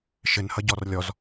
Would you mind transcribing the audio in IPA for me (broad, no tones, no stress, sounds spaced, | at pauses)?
ʃ ɘ n h ʌ ɟ ɔ r lʲ ɔ z